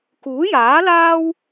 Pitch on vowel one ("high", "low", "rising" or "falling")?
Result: rising